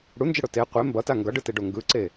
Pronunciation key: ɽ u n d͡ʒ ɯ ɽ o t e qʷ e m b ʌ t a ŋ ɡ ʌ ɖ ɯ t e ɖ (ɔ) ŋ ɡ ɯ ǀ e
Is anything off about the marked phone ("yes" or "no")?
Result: yes